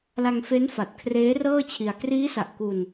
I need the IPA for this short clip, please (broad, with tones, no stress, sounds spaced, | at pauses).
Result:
l a˧ ŋ f e˦˥ n f a˨˩ t̚ kʰ r eː˦˥ r ɤː˥˩ t͡ɕʰ i˧ a̯ k r iː˦˥ s a˨˩ ʔ k u˧ n